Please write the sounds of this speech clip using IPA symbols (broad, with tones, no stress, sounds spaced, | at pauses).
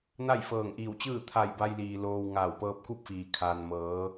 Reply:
n a˥˨ j f ɤː˧˩ ŋ ʔ iː˧˩ w t͡ɕ ɯː˥˨ t̪ʰ a˧˩ j b a˧ j l iː˩ l oː˧ w ŋ aː˧˩ w p ɤː˧ p̚ k u˥˨ p̚ f iː˩ kʰ aː˩ n m ɤː˩˧